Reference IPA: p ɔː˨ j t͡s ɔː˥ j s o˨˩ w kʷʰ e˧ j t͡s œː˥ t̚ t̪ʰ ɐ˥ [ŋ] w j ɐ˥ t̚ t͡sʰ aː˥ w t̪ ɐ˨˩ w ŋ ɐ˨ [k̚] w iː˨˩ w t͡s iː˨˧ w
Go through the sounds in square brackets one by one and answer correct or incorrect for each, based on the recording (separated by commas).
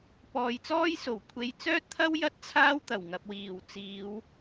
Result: incorrect, incorrect